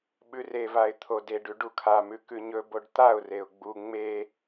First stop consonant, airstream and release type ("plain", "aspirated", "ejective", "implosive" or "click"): implosive